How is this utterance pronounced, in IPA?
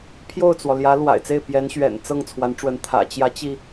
pʰ j o˥˩ ʊ̯ t͡s w ɔ˩ l j ä˧˥ l w a̰˨˩ ɪ̯ t͡s e˥˩ ɪ̯ p j ɛ˧˥ n ɕ ɥ ɛ̰˨˩ n t͡s ɤ˥˩ ŋ t͡sʰ w a˧˥ n ʈ͡ʂ w ə˧˥ n t̪ʰ ä̰˨˩ t͡ɕ j ä˧˥ t͡ɕ i˧

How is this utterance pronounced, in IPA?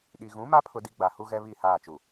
ɗ i˨ ɣ ũ˨˦ m a˦ pʰ ʊ˦ d i˦ ɡ͡b a˨ h u˦ ɣ ɛ˦ β i˦˨ h aː˦˨ t͡ʃ u˨

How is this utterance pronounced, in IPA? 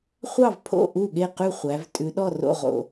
χʷ ɑ˥˩ v pʰ o̰˥˩ ʔ u˥˩ ɠ e˥˩ q ʉ˥˩ χʷ æ˩˧ v tʼ ʉ˩˧ ɗ ɔ˥˩ r o̰˥˩ ʁ o̰˥˩

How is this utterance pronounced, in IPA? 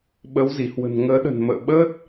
ɓ ə˨˦ w z i˧˩ h w ə̤˨˩ n ŋ əː˨˦ ɗ ə̤˨˩ n m ə̰ː˧˨ ɓ əː˦˥ t̚

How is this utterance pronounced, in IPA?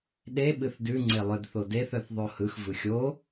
ɗ e ɓ ɨ θ d ʉ ŋ͡ǀ e lˠ œ d θ o d e θ œ θ ðˤ o h ɯ x v ɯ xʲ o

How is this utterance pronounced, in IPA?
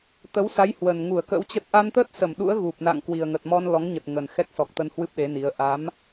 t̪ ə˨˦ w s a˨˦ j h w ə˨˩ n ŋ u˧˩ ə̯ k ə̰˧˥ w t͡ɕ ə˦˥ t̚ ʔ a˧ n t̪ əː˦˥ t̚ s ə˧˩ m ɗ ṵ˧˥ ə̯ ɣ u˨˩ p̚ n a̰˧˨ ŋ k w i˨˩ ə̯ ŋ ə˨˩ t̚ m ɔ˧ n l ɔ˨˦ ŋ ɲ ə˨˩ t̚ ŋ ə˨˩ n x ɛ˦˥ k̚ s ɔ˨˩ k̚ t̪ ə˧ n h w ɨ˦˥ p̚ ɗ e˨˦ n i˨˦ ə̯ ʔ a˨˦ m

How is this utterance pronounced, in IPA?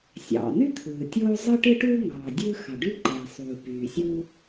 sʲ ɑ̰˩ n̪ y˥ t̪ʰ ɯː˩ tʲ oː˥ zˤ ɯ˥ ʈ ɯ˥ ʈ uː˥ ŋ ɑː˩ dʲ ɯ˥ x ɑ˩ ɖ y˥ ǃ eː˩ sˤ uː˩ p yː˩ sʲ u˥

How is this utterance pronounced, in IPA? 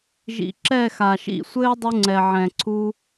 ʒ ḭ˨ ǁ ɛ˦˨ x a˨ ʃ ḭ˦˨ sʷ ɘː˦ dˤ u˧ ŋ͡ǀ ɛ˨ ʕ ɛ̃˨ ǀʰ u˦

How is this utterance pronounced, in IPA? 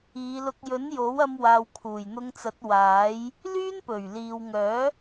iː˨˧ l ʊ˧ k̚ j ɵ˨˥ n j o˨˥ w ɐ˧ m w aː˨ w kʰ uː˨˩ j n̪ ʊ˧ ŋ t͡s ɐ˨˥ t̚ w aː˨˥ j | l yː˥ n p ɵ˨˩ ɥ l iː˨ w ŋ œː˨˥

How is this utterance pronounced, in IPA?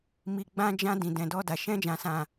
m i˨ ɡ͡b ã˧ d͡ʒ ã˧ d ĩ˨ d ɛ̃˨ d ɔ˧ d a˨ ʃ ɛ̃˧ d͡ʒ ã˨ s ã˨

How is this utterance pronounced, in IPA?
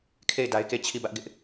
kʰ e˦˨ ɪ̯ d a˦ ɪ̯ k e˦˨ t͡ɕʰ i˦˨ b ä˦ ʔ ɡ ɪ˦ ʔ

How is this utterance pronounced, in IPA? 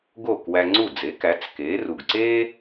ɡ oː˥˩ k w æ˧ ŋ͡ǀ u˥˩ d͡z e˩˥ k æ˩˥ t͡s k eː˩˥ r u˩ ɡ ǀ eː˥

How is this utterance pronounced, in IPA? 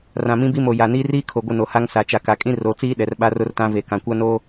r ã˨ m ĩ˦ b i˦ m o˨ j a˨ n iː˦ r iː˦ kʰ o˨ ɡʷ ɪ˦ n o˨ h a˦ ŋ s a˨ t͡ʃ a˨ k a˨ kʼ ĩ˦ r o˨˦ t͡s iː˦ ɗ ɛ˨ r ɓ a˦ r ʊ˦ r t ã˦ v e˨ k ã˨ kʷ a˦ n oː˦

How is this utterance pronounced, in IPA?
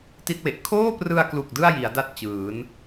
t i˥˩ t̚ w e˨˩ ʔ kʰ oː˥˩ p r ɯ˧ a̯ k l u˨˩ k̚ d ɯ˥˩ a̯ j i˩˦ a̯ d a˥˩ t̚ t͡ɕ ɯː˩˦ n

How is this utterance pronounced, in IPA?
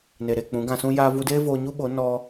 n e˨ ɾ e˦˨ k͡p ũ˨˦ ɡ ã˧ s ũ˦ j aː˧ v u˧ d eː˦ v oː˧ ɲ u˦ ɓ o˨˦ n ɔ˧

